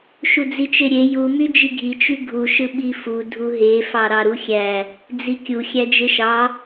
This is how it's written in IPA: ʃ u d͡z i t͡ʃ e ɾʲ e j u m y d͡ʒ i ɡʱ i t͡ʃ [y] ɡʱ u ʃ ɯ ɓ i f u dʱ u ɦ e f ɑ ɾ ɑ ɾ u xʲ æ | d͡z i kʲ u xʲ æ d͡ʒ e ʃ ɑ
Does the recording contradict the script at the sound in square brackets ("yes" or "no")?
no